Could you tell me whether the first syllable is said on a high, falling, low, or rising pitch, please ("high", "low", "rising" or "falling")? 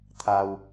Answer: low